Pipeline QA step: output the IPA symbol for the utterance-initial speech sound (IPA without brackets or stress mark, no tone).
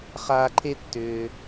χ